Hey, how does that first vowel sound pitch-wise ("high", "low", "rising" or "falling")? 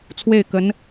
falling